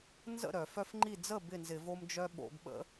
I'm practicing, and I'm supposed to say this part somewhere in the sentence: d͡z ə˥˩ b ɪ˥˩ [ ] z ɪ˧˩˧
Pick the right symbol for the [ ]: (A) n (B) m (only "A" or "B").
A